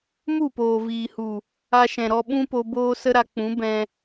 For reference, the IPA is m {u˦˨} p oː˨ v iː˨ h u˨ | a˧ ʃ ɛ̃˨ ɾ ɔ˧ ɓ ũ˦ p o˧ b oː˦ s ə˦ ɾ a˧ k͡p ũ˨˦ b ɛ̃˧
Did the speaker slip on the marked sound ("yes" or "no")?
no